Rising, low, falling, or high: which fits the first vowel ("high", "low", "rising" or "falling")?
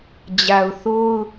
low